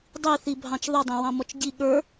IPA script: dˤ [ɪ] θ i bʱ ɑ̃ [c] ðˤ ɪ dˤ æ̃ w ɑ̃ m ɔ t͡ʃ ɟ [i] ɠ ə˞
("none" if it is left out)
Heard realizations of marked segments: i, t͡ʃ, i

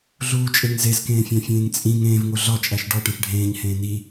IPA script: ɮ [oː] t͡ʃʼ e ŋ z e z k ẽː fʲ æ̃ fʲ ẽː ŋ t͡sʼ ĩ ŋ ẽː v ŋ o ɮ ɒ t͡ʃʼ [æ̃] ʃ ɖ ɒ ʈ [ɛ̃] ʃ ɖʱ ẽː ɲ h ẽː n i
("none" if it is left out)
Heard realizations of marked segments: uː, æ, ẽ

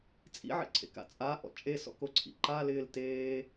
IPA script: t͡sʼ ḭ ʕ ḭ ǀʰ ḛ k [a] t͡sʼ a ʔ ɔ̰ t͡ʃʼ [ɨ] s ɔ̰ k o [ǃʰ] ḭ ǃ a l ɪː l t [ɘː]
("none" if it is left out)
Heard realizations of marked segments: a̰, e, ǀʰ, eː

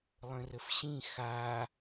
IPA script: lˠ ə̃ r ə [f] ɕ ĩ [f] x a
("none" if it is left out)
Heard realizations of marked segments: f, none

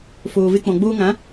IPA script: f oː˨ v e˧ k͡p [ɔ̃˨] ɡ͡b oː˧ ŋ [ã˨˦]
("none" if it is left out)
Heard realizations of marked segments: ɔ̃˨, ã˨˦

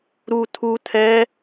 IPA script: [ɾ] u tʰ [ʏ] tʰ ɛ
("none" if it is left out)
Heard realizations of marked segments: ɾ, u

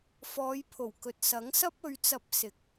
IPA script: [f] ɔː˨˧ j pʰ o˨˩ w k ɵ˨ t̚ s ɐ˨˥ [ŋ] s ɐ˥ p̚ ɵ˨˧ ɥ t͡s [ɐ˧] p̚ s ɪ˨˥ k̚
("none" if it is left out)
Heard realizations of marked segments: f, ŋ, ɐ˧

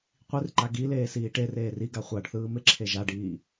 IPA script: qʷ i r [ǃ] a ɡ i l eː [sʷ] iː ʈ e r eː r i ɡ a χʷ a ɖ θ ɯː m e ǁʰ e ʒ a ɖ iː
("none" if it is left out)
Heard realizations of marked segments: ǃ, s

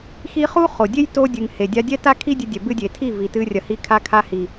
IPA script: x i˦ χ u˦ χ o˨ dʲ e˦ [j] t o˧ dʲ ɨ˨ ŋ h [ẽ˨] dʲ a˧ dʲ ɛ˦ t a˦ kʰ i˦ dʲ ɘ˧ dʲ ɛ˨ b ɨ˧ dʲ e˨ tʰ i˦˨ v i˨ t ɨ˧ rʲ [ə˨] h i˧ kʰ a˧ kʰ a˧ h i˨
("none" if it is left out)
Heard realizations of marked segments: j, e˨, ɐ˨

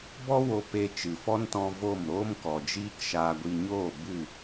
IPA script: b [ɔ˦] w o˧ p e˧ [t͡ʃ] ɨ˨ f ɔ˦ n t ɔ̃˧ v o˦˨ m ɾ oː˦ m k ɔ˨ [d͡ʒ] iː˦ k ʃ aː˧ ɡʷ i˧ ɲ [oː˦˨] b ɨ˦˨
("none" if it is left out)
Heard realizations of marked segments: ɔ˦, t͡ʃ, d͡ʒ, oː˦˨

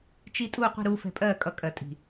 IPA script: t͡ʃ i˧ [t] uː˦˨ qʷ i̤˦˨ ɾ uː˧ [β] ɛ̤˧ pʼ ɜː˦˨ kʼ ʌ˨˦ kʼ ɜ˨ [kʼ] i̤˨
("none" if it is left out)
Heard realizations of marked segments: tʼ, f, tʼ

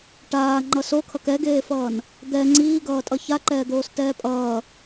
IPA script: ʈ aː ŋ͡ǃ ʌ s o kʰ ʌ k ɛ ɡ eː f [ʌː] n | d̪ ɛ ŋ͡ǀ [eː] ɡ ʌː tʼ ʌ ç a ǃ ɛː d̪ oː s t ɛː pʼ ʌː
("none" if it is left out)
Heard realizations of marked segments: ʌː, iː

